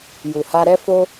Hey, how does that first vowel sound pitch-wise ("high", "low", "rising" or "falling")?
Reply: low